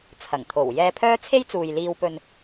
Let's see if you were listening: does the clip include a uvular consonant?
no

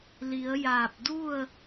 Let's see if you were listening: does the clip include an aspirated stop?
no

